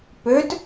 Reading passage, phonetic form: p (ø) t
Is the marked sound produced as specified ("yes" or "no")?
yes